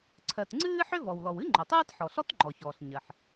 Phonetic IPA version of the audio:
ǀʰ ɜ˩ t ŋ͡ǀ ɨː˥ ħ ʏ˥ v ɔ˩ w l ɔ˩ w ɨ˥ ŋ͡ǃ o˩ tˤ ɨː˥ t ħ ɔ˩ ɬ ɔ˥ t ŋ͡ǃ ɔ˩ ç ɔː˩ ɬ ɲ ɜ˩ ħ

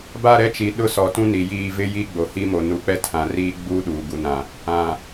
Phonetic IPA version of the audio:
b a˦˨ ɾ ɛ˦ t͡ʃ i˨ ɗ ʊ˦ s ɔ˨ t ũ˦ n i˨ j iː˦˨ v ɪ˦ j i˦ ɡ͡b o˨ h i˦ m o˨ n u˨ k͡p ɛ˦ tʰ ã˨ r iː˦ ɡ͡b uː˦ ɗ uː˨ ɡ u˨ n ã˨ | ã˨

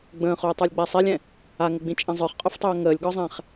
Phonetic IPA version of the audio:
ɡ͡b ə̃ː χ ʊː tˤ ə˞ lʲ ɡ͡b a sˤ ɛ lʲ ɛ̃ | a ŋ ʊ ɡ͡b ĩ t͡ʃʼ ɛ̃ zˤ ə˞ χ qʼ ʊ f tˤ ʊː ŋ əː lʲ ɡ ɔ zˤ ɛ̃ χ

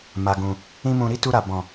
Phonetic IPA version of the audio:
m a˨ ɡ ũ˨ | ĩ˦ m ũ˧ ɾ i˦ t u˧ ɾ a˨ b ɔ̃˨

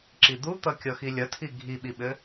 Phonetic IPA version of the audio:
ǁ i d̪ u t̪ ʌ kʲ ɔ x i lʲ ʌ tʰ i ɡʱ i ɓ i ɓ ɘ

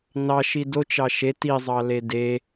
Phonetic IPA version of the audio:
n ɑ ʃ i d o t͡ʃ ɑ ʃ e t i zˤ ɑ l e d e

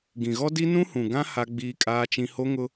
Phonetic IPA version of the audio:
ɡ ĩ˨ ɣ ɔ˦ d i˦ n ũ˦ h ũ˨ ɡ ã˦ h a˦ ɡ͡b iː˦ kʼ aː˦ t͡ʃ ĩ˦ h o˦ ŋ ʊ˦

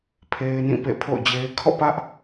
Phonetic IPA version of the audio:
pʰ e˦ ɪ̯ n ĩ˦˨ p ḛ˦˨ pʰ o̰˦˨ ʊ̯ d͡ʑ e˦ ɪ̯ kʰ ɔ̰˦˨ p ä˦ ʔ

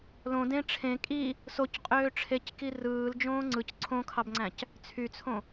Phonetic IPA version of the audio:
l õ d ẽ ʈ͡ʂʰ ẽ kʼ i | s o c qʼ øː ʈ͡ʂʰ e c k i r ɯː l d͡ʒ õː ŋ͡ǀ ɯ c ǀʰ õ kʰ ɑ b ŋ͡ǀ æ̃ c | t͡sʰ y t͡sʰ õ

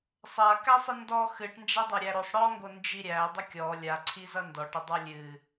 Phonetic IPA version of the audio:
sˤ a k æ sˤ ɨ n d ɔ x ɨ ʈ n d͡ʒ a dˤ ɐ ɾʲ æ ɾ o sˤ ɽ ɔ ŋ ɡ o n d͡ʒ i ɾʲ æ dˤ ə kʲ ɔ lʲ a ǀʰ i z ʌ n d ɔ ʈ ə dˤ a lʲ ɨ

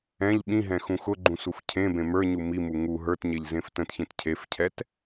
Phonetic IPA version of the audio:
ɛ̃ ʎ ɓ ĩ ɦ ɛ̃ x ũ x ʊ ɡ͡ǃ ũ s u f cʰ ẽ b ẽ m ə˞ ɲ u m i m u ŋ u ɦ ə˞ t ɲ e ʎ z ẽ f t ə̃ t ç ẽ t cʰ e f cʰ ɛ t

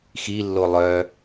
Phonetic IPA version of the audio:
x i lː o lˠ œ

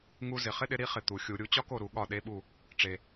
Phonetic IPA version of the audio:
ŋ u˥ z ɪ˨ χ ɪ˥ ɗ ɪ˩˥ ɾ i˩˥ χ ɪ˨ t̪ u˨˩˦ xʲ u˨˩˦ ɾʲ u˩˥ t͡ɕ ɒ˥ k o˦˨ ɾ u˨˩˦ ɠ ɒ˦˨ ɗ e˧˥˧ ɓ u˦˨ | ʈ͡ʂ e˨

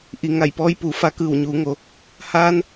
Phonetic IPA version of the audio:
ʔ i˩ ŋ a˧˩ j p ɔː˧˥ j p uː˩˧ f a˧ k ɯː˧˩ w ɲ uː˩˧ ŋ o˩˧ | h aː˧ n

